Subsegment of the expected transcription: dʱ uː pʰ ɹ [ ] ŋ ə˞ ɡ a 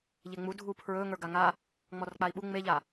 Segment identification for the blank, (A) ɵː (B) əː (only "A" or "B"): A